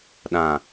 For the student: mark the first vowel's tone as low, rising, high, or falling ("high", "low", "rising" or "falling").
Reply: low